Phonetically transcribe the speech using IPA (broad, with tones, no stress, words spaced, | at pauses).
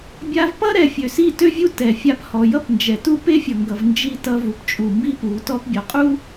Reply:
bʲa˧vpʌ˦ɾɛ˨ fʲø˨si˦˨tø˦vʲu˦ tɛ˨fʲa˧p hɔ˨jʌ˦pnd͡ʒɛ˨ tu˦˨pe˦fʲʌ˨ŋɡʌ˨v nd͡ʒi˧ tʌ˧vu˨p t͡ʃʼu˨ mbi˦pu˨˦tɔ˦p bʲɔ˨qʼu˦